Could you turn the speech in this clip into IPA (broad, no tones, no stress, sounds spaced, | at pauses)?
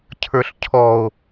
cʰ ə˞ ɬ cʰ ɔ o̯